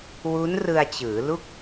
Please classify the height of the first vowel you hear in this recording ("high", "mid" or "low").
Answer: high